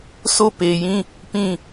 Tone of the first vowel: falling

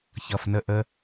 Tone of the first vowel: low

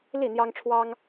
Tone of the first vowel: falling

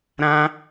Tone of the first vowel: high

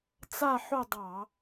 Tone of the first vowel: falling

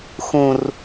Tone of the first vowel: high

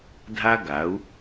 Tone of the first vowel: high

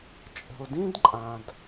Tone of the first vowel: low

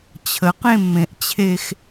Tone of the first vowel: rising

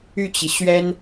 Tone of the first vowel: falling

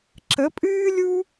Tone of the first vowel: rising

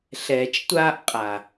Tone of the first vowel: low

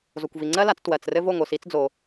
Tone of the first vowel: low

